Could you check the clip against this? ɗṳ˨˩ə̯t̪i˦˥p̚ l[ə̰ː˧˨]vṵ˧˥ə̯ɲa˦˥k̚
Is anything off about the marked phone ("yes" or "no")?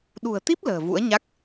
yes